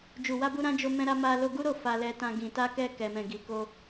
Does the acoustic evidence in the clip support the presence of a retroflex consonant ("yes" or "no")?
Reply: no